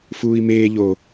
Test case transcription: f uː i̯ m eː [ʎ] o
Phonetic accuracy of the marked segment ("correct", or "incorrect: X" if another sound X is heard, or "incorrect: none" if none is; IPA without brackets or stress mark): correct